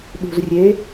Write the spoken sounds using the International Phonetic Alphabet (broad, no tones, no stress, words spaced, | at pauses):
ɗṳzrʲe